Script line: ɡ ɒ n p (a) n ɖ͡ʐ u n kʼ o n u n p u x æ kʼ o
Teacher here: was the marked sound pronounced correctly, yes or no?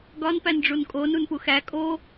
no